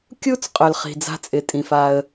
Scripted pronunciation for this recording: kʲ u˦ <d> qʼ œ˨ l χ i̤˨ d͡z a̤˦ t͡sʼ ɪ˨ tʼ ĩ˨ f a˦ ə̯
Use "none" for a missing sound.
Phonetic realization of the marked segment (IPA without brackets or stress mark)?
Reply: t͡s